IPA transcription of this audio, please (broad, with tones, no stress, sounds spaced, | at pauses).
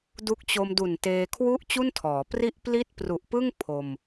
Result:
d u˦˥ k̚ t͡ɕ o˧ m d u˨˩ n t eː˧ kʰ w u˥˩ ʔ t͡ɕ u˥˩ n tʰ ɔː˩˦ p r i˦˥ ʔ p l i˥˩ t̚ p r u˨˩ ʔ p ɯ˥˩ ŋ pʰ o˧ m